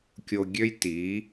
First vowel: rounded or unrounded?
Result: rounded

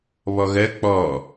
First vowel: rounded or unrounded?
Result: rounded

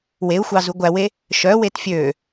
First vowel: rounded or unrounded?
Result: unrounded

